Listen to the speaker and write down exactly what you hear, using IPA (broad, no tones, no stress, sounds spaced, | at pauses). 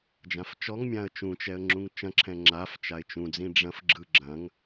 d͡ʒ ã f t͡ʃ ɔ ŋ mʲ ã ə̯ t͡ʃ ũ t͡ʃ ɛ ə̯ ŋ͡ǁ ũ ŋ t͡ʃ ɐ̃ ǁʰ ɛ̃ ŋ͡ǁ a f t͡ʃ a ɪ̯ t͡ʃ ũ d͡z ĩ ɖ͡ʐ ɐ̃ f ɡ͡ǁ ɯ ɡ͡ǁ ɐ̃ ŋ